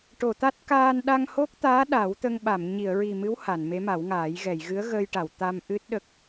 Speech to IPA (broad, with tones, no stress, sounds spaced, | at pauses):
ʈ o˨˩˨ t̪ a˦˥ t̚ k aː˧ n ɗ a˧ ŋ h o˦˥ k̚ t̪ aː˧˥ ɗ a˨˩˦ w t̪ ə˧ ŋ ɓ a˨˩˨ m ɲ i˨˩˨ ə̯ ɹ i˨˩ m ɨ˧˥ w h a˨˩˨ n m e˧˥ m a˨˩˦ w ŋ aː˨˩˦ j ɣ ɛ˨˩˨ j ɣ ɨ˧˥ ə̯ ɣ əː˧ j ʈ a˨˩˨ w t̪ a˧ m ʔ ɨ˦˥ t̚ ɗ ə˦˥ k̚